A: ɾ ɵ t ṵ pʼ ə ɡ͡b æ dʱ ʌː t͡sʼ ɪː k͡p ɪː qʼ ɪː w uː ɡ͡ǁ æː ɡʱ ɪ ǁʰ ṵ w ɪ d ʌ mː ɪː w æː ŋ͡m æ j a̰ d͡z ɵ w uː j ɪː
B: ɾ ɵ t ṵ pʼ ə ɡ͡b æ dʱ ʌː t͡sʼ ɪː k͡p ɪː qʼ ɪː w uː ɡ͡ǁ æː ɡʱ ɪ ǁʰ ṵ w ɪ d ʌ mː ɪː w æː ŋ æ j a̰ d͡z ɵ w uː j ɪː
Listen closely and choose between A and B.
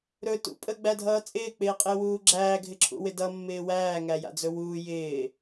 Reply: B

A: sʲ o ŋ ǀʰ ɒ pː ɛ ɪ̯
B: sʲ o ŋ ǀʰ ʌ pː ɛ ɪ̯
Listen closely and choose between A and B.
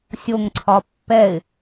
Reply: A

